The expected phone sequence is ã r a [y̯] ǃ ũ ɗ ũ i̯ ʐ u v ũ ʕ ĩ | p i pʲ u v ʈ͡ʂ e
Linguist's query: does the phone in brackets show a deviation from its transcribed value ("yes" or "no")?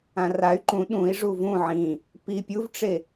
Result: no